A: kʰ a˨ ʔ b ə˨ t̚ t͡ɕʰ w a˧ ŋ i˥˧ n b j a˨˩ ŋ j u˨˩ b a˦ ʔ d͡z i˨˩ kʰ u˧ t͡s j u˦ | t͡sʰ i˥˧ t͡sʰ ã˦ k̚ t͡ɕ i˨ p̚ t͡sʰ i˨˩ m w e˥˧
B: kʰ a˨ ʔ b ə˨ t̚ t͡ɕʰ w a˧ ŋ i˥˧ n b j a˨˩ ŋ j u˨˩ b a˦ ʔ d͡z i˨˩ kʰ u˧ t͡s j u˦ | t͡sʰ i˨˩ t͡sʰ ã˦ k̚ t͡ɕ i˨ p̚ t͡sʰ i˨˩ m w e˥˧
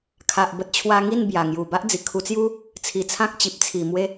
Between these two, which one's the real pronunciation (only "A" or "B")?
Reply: B